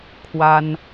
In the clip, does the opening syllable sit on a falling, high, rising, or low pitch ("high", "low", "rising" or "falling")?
high